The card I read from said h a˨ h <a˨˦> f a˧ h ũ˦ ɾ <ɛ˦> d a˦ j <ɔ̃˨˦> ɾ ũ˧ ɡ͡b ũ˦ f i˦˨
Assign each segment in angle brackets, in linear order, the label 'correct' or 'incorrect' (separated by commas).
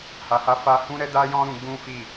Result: incorrect, correct, incorrect